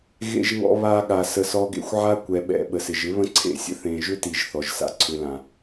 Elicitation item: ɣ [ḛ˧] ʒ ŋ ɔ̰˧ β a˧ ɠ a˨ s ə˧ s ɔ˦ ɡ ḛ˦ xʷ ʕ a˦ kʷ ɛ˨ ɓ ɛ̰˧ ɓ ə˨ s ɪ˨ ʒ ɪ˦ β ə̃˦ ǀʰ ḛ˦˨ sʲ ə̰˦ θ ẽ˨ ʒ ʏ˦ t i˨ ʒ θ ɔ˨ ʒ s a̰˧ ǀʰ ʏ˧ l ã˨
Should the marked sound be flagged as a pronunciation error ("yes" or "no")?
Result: no